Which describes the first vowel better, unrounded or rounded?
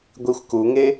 unrounded